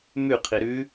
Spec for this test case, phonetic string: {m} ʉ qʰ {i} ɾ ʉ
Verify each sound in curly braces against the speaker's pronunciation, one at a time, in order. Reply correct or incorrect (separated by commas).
correct, correct